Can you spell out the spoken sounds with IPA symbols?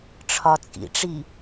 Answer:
ʈ͡ʂʰ ɒ t͡sʼ ḭ ʈ͡ʂ i

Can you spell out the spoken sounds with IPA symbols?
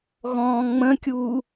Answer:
ɣ ɔ̃ː ŋ͡m ə̃ kʲ uː

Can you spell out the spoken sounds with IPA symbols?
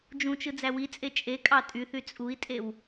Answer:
d͡ʒ ũ t͡ʃ ɯ d͡z æ w i t͡sʼ e t͡ʃʼ e kʼ ɑ tʼ y θ y t͡sʼ u i̯ tʼ e w

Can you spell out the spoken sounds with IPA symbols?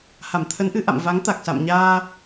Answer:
h a˧˩ m t̪ʰ ə˨˦ n ʔ ɨ˨˦ ʔ a̰˧˨ m v a˨˦ ŋ t̪ a˨˩ k̚ s a̰˧˨ m ɲ aː˧

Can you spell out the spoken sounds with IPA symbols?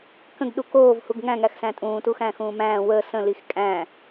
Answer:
k ə̃ ɡ ɗ u k oː v h u ɡ ŋ æ̃ ŋ æ x s æ̃ tʼ ũː t u x æ̃ː x ũː m æ̃ː w əː s ə̃ l i x kʼ æ̃

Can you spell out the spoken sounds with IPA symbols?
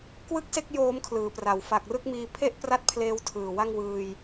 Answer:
k w ɯ˥˩ k̚ s e˥˩ k̚ j oː˦˥ m kʰ l ɯː˩˦ p r a˩˦ w f a˨˩ k̚ r ɯ˥˩ k̚ m iː˧ pʰ e˥˩ ʔ p r a˥˩ t̚ pʰ l eː˦˥ w tʰ ɯː˨˩ w a˥˩ ŋ w ɯː˧ j

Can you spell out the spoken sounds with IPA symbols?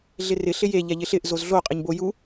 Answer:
ɮ ɪ r ɪ ɬ ɪ j e ʎ ɛ ʎ ɪ ɬ ɪ ʔ z o z ɮ o qʼ ɪ ɲ b o j u

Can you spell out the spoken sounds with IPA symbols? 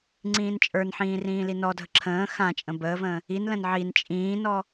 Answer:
ŋ͡ǀ ĩː n t͡ʃʼ ə˞ n ħ ĩː r ĩː l i n ɔ dʱ ə ǁʰ ə̃ː x ã t͡ʃʼ ə̃ b əː v ə̃ː | i n l ə̃ n ʕ i n t͡ʃʼ ĩː n ɔ

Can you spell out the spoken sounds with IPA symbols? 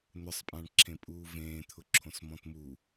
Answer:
n̪ ʊ sˤ pʼ ã ɳ ǁʰ ẽ pʼ uː v ẽː t̪ʰ ʊ ǁʰ õ s m ɔ̃ t m u

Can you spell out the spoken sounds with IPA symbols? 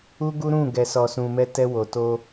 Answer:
u˦ ɡ u˦ ɾ ũ˦˨ ɡ ɛ˨ s ɔ˨ s ũ˨ m ɛ˧ t ɛ˧ w o˨ t o˧

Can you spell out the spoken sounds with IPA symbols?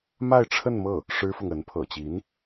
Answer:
m a˥˧ ɪ̯ ʈ͡ʂʰ ə˥˧ n m ɤ˥˩ | ʂ ɻ̩˥ f ʊ˨ ŋ ə˧˥ n pʰ ɤ̰˨˩ t͡ɕ i˧˥ n

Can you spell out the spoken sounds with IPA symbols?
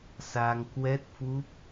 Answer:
s a˧ ŋ k w ɛ˦˥ t̚ f u˦˥ p̚

